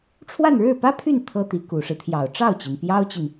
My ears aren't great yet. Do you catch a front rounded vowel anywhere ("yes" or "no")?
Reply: yes